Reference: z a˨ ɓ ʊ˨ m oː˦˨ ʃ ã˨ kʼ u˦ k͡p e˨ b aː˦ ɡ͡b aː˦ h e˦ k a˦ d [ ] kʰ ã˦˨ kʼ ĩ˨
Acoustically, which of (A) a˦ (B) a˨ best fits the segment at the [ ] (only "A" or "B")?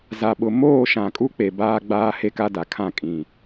B